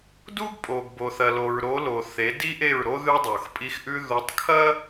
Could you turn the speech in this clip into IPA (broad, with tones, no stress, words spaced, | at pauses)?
du˦ɡpʼo˨ɡbo˨θɐ˨ lo˨ɹɾo˨˦lo˨ θe˨˦di˦ʔe˦˨ɹɾo˦ ðʉ˦dˤo˨xpʼi˦xʔʉ˦ ðu˨˦tˤkʰɐ˦